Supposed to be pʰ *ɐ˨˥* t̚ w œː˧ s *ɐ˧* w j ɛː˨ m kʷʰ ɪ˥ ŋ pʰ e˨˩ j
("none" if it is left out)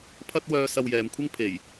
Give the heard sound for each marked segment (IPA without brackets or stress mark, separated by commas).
ɐ˥, ɐ˧